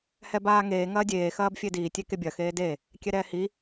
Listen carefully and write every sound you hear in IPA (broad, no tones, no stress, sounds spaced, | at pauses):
h ɛ b aː ŋ eː ŋ ɐː dʲ eː x ɐː b fʲ e d iː tʲ e k e bʲ ɐ x eː d e | kʲ ɛ ɾ ɛː h i